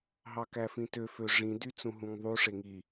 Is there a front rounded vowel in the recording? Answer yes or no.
yes